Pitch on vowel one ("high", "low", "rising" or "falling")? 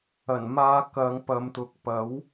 low